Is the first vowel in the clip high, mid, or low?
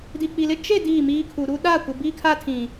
high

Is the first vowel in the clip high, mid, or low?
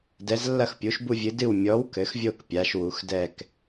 mid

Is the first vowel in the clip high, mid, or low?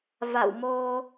low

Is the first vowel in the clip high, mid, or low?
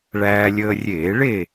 low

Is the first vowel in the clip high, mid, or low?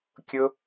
high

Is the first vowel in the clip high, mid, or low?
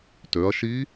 mid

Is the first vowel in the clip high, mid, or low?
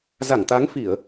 low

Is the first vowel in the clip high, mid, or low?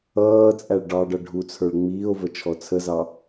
mid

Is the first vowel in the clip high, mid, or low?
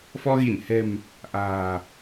mid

